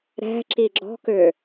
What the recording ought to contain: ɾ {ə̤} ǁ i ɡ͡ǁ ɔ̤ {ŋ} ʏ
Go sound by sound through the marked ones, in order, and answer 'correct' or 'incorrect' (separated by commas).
incorrect, incorrect